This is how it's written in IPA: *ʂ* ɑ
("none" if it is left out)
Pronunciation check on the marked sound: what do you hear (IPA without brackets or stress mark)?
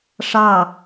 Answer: ʂ